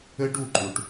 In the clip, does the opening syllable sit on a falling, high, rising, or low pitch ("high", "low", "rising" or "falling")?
high